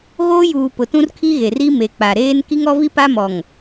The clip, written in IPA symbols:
ɣoː˦juː˨ pʊ˨tũ˦rkʰi˦ɣe˨r i˦me˨k͡pa˨ ɾeː˦n ki˦ŋɔ˦vi˦ pa˦mɔ˨ŋ

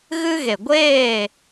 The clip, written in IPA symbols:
ɣɨ˦ ɣe˨ɡʷeː˦˨

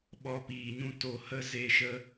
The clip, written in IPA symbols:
ɓɔ˧piː˨ɲũ˦ to˧hə˦ ze˦ʃə˦

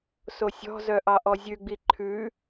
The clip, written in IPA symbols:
sosʲɔ̤zœ ʔɑʔɔzʲʉɡ͡bi ǃʰʉ

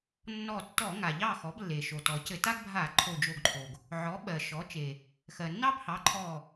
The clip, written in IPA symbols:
nːɔ˧˩tːɔ˧˩˧ ŋa˩ʎɑ˥˩xɔ˩˥blːe˩ ʃo˩ tɔ˩cɘ˧˩˧ ta˦ɡbʱa˧˩˧ ǃʰo˧˩d͡ʒo˧˩ɡǃʰo˩ɡ | ʕɔ˩˥ ɓɜ˩ ʃɔ˩˥t͡ʃe˩ | xɜ˩nːɑ˦bhɑ˩˥ ǃʰɔ˧˩

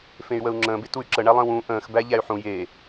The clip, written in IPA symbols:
fẽy̯wəu̯ŋ͡ǁə̃ː betuy̯ǁə ɳælˠə̃ːwũ ʔə̃ːx bæʎæy̯ħũ je

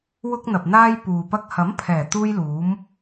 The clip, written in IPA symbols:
wʊ˥k̚n̪ɐ˨p̚n̪aː˥j puː˨pɐ˥k̚ hɐ˨˥mpʰɛː˨˩ t̪uː˥j luː˨˥m

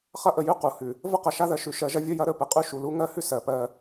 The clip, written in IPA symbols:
χɐ˦ʔə˨jʉ˦ qu˨hʉ˨ | və˦qɐ˨ʃa˦ ðɜ˨ʃʉ˨ ʃɜ˨ʒɐ˦ vʲə˦jɐ˦ ɾə˦pə˨ qʼʉ˦ ʃu˨lu˦ŋɜ˦hʉ˦ sɜ˨pɜ˦

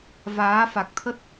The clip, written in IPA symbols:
vaː˨˦fa˨˩k̚t̪ʰə˦˥t̚

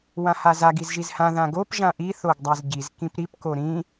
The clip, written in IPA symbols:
wãhazaɡ izʒizhã ðãɡop ʒãʔi θoɡdˤazɟiz kĩpɾip koɾĩ

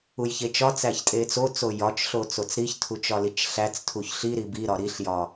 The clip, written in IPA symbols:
ujçet͡ʃɒt͡sæç tʼet͡sot͡so jɒt͡ʃɬo t͡sot͡sɾiçtʰu t͡ʃɒlit͡ʃɬæt͡stʰuç ɬiɾi biɾɒ ɾiɬjɒ

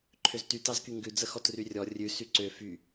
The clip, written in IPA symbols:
ǃʰøzty tɑzkyŋɡʉ d͡zəxɔtryrʲɔ rʲʉ syǀø fy

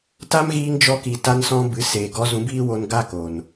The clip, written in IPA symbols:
ta˦mɣiː˧ŋd͡ʒɔ˧ ki˨ ta˧nsɔ̃˧ bɨ˨˦ seː˨ɡɔ˧ zũ˨˦biː˦wo˧n ɡa˦ko˨n

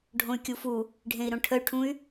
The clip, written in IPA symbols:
ɖʱõy̯kʲufu | ɖʱẽi̯ɾõʈʰəy̯ʈʰũy̯

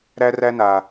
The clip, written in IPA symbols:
ɾæ˧ræ˧na˨

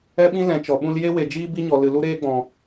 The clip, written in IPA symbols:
ɛ˦ɓĩ˦ lɛ̃˨˦t͡ʃɔ˨ ɓũ˧lje˦ we˨d͡ʒiː˦bi˦ɲɔ˨ lɨ˨lu˦ɾeː˦ɡ͡bɔ̃˨

